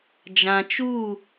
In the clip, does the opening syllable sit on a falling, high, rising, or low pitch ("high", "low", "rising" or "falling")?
low